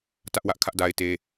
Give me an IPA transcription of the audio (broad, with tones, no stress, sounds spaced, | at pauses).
t ä˦ ʔ w ä˦ ʔ kʰ ä˦ ʔ d a˦ ɪ̯ t e˦